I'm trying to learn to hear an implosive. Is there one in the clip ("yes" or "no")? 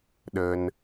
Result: yes